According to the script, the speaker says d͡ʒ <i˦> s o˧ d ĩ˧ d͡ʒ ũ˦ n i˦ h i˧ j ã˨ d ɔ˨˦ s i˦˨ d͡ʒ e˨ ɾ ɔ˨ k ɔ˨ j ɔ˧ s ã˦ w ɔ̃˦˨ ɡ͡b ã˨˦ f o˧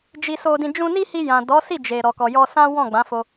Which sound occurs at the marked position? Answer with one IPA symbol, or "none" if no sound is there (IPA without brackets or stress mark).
i˧